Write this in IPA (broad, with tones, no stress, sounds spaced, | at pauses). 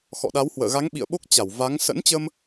x ɔ̰˧˨ ɗ a˨˦ w h w ə̰ː˧˨ ɣ a˨˦ ŋ ɓ ḭ˧˨ ə̯ ɓ o˦˥ k̚ t͡ɕ a˧˩ w v a˨˦ ŋ s ə̰˧˥ n t͡ɕ ə˧ m